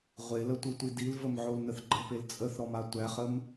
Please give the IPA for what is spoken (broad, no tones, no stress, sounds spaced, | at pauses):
ʁʷ e l ə tʷ i tʷ i d i l v ə m ʕ o l n ə θ ɡ͡ǃ ə p e l t͡sʼ ə θ ɾ ɔ m a tʷ æ χ ə m